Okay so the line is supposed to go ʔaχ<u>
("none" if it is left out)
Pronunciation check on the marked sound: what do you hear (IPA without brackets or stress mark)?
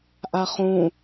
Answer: ũ